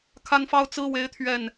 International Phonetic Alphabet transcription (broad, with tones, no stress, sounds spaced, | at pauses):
kʰ a˦ n f ɑ˦ ʊ̯ t͡s ɹ̩˦ w e˦ ɪ̯ t̪ʰ ɥ ɛ˥˨ n